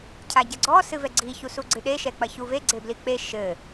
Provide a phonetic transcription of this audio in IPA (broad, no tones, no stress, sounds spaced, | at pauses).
cʰ a ɟ ɐ ɡ͡ǀ ɔ s ɨ v ɛ ɡ͡ǀ i ç u s u ɡ͡ǀ ɨ ɗ e ʃ ɛ k͡p ɐ ç u v e ɡ͡ǀ e b l i k͡p e ʃ ɘ